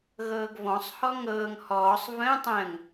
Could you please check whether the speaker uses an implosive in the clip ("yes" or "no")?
no